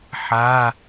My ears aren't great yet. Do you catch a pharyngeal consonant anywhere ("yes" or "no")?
yes